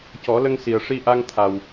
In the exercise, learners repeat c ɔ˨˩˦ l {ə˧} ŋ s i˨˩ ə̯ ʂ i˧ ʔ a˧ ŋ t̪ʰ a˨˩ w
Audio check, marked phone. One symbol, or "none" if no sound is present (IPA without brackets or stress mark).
ə˧